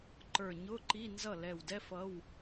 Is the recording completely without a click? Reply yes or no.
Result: no